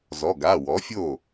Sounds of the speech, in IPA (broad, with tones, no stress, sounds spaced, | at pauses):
z ɔ˩˧˩ ɡ a˩˧˩ w ɔ˩˥ fʲ o˥˩